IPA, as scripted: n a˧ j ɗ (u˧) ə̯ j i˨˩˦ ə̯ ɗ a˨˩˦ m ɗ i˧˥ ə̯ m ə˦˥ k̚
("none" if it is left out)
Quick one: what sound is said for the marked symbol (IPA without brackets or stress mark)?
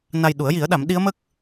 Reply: u˨˩˦